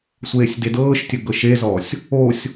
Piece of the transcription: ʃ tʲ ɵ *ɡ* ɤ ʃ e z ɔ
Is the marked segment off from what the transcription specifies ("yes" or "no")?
no